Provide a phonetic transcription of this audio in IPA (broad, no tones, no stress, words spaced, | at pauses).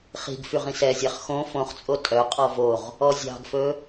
χi̤ɡ fyʁĩsɛzʲæχ xõ fõχt͡sʼo tʼœqʼɔ voʁ | ɔzʲɑ̤ɡfɵ